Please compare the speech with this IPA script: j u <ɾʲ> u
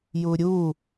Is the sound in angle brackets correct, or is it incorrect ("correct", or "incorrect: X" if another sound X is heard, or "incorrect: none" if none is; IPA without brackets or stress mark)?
correct